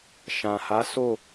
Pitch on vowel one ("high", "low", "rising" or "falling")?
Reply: low